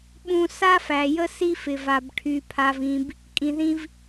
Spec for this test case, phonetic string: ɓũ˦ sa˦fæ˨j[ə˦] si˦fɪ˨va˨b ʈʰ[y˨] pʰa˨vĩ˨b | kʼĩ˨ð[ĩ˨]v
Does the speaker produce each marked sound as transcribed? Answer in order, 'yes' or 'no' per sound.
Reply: yes, yes, no

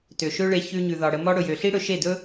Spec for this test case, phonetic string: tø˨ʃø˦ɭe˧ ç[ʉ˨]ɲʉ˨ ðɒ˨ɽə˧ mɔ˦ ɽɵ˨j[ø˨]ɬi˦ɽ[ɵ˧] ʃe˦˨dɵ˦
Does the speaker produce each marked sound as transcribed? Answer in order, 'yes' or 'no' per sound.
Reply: no, yes, yes

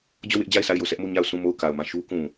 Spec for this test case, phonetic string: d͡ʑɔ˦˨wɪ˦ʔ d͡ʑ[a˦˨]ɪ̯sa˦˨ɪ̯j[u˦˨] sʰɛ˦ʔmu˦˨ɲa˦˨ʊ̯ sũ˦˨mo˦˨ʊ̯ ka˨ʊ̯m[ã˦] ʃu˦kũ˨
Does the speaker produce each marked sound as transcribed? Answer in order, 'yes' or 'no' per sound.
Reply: yes, no, no

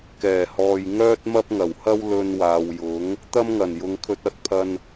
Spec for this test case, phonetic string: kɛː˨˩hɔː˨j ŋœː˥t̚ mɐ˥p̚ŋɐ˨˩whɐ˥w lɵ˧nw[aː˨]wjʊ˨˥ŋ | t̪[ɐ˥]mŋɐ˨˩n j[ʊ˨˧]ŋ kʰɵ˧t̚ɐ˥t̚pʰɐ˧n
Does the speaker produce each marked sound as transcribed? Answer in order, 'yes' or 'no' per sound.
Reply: yes, yes, yes

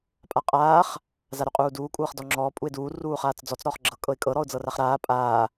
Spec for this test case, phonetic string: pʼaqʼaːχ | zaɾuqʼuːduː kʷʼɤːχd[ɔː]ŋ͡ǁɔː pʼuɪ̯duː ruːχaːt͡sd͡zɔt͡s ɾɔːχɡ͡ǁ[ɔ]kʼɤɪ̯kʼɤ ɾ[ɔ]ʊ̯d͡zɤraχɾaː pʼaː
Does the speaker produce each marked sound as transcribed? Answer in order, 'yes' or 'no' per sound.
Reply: no, no, yes

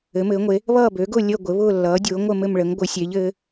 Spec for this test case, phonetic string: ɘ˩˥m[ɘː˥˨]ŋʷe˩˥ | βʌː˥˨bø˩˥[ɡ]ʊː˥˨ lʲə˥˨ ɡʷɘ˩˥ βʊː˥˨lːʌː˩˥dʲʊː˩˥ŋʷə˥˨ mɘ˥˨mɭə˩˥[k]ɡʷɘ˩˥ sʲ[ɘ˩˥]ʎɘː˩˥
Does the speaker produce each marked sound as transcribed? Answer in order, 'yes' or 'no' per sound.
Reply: no, yes, no, no

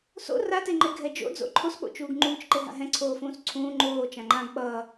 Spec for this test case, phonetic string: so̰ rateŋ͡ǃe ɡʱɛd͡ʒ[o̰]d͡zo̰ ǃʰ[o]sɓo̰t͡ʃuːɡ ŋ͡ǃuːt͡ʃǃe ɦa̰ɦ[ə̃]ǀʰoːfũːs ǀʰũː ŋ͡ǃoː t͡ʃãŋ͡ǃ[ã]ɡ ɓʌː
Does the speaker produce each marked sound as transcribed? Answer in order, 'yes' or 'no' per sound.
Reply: yes, yes, no, yes

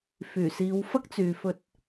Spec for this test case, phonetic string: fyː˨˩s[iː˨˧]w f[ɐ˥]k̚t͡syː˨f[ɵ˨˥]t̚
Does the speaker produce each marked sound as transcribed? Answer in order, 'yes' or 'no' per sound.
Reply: yes, yes, no

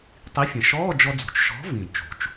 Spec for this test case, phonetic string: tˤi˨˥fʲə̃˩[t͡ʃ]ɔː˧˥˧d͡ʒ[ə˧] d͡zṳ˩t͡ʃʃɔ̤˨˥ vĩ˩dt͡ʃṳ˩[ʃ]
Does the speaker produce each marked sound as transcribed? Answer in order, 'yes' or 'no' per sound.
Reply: no, no, no

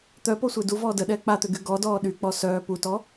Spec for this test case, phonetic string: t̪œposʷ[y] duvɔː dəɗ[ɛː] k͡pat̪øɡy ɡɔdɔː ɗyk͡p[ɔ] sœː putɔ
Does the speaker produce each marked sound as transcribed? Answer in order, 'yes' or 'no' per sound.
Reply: no, yes, yes

